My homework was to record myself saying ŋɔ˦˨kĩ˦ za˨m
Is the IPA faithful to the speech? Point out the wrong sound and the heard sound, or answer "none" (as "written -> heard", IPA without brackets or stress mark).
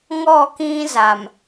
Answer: none